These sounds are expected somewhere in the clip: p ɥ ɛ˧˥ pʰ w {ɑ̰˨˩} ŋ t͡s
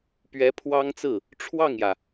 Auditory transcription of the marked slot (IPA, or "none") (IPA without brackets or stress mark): ɑ˥